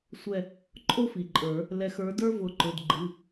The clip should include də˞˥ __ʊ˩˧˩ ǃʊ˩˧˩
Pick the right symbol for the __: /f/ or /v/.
v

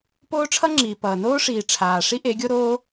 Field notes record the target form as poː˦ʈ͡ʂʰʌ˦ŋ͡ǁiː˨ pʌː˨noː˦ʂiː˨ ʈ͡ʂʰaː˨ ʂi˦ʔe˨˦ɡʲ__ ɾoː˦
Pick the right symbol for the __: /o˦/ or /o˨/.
o˦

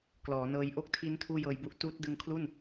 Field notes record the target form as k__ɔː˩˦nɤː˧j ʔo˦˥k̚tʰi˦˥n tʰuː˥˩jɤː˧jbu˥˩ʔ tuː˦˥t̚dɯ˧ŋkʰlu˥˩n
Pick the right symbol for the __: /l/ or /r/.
l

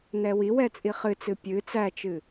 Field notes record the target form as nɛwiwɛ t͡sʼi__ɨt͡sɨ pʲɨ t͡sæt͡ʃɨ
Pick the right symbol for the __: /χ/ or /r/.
χ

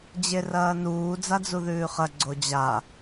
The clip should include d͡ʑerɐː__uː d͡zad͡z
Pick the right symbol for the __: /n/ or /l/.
n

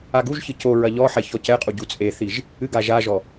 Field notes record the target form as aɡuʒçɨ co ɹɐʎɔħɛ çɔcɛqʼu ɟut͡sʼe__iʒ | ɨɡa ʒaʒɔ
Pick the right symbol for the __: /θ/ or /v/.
θ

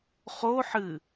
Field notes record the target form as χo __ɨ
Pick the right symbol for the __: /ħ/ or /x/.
ħ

